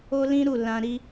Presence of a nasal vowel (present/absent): present